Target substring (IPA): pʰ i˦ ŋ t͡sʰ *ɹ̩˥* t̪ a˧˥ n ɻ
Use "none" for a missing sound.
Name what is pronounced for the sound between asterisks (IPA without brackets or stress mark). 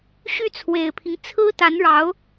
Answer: ɹ̩˥